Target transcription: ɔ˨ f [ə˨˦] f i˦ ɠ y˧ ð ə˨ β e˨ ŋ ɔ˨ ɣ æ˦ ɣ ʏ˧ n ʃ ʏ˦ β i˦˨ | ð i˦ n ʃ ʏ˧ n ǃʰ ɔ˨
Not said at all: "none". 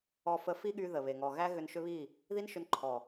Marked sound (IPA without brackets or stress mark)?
ə˨˦